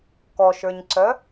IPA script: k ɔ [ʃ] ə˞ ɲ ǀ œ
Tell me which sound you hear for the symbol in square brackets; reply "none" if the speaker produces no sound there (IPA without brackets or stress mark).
ʃ